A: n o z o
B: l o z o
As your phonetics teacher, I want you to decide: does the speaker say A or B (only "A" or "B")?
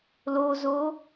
B